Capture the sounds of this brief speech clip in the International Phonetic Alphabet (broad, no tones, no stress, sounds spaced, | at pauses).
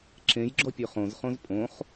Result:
ǁ ẽ j ɡ͡ǁ ɔ pʲ ø χ õ z χ õ z pʼ õ χ